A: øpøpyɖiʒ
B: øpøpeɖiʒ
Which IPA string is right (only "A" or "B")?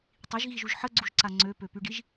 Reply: A